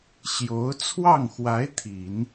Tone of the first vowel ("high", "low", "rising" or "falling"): rising